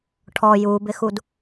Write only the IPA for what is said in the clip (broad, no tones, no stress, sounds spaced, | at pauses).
ʈʰ ɔ j u b ɪ x u d